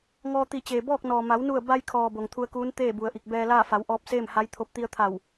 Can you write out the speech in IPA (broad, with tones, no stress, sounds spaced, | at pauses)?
ŋ ɔː˧ t̪ i˧˩ t͡ɕ eː˩ b ɔː˥˨ k̚ n ɔː˩ m a˩˧ w n u˧˩ ə̯ b a˧ j kʰ ɔː˩ b o˩ ŋ t̪ʰ u˧ ə̯ k uː˧˥ n t̪ eː˥˨ b u˩ ə̯ ʔ i˧˩ k̚ b ɛː˧ l aː˥˨ f a˩˧ w ʔ ɔː˧ p̚ s eː˥˨ m h a˧˥ j t̪ʰ o˧˥ p̚ t̪ i˧ ə̯ t̪ʰ a˧˩ w